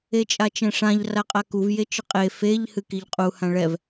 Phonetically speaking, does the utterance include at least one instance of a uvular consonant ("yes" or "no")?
yes